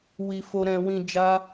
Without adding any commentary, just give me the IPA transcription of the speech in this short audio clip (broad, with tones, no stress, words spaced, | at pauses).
wi˧fo˧ɾɛ̃˧wĩ˧ d͡ʒa˦